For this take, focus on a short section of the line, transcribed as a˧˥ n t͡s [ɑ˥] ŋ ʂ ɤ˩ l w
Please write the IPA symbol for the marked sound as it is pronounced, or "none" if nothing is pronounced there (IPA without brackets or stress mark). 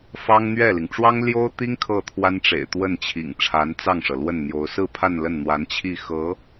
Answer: ɑ˥˩